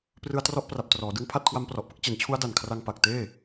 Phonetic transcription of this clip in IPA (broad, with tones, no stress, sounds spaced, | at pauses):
p r ɯ˧ a̯ t r ɔ˦˥ ʔ p r a˨˩ p̚ t r ɔː˩˦ d ɯ˦˥ ŋ pʰ a˥˩ t̚ kʰ w a˦˥ m p r ɔ˨˩ ʔ p ɯ˦˥ k̚ t͡ɕ e˩˦ n t͡ɕʰ u˦˥ a̯ d a˨˩ n kʰ r a˧ ŋ p a˨˩ k̚ t eː˥˩